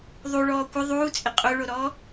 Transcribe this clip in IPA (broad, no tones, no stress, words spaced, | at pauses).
ðˤuɭɔː kʷɪ ðˤuːt͡sʼɪ qʼoɭoɾɔː